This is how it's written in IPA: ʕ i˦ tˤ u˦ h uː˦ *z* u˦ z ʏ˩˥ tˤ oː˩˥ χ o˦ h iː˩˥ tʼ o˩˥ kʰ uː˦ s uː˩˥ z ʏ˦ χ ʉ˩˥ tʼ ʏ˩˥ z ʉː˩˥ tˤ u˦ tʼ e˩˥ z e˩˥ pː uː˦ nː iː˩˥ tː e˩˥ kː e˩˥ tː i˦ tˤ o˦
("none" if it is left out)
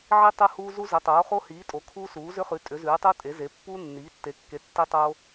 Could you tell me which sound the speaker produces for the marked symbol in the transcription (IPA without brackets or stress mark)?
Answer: z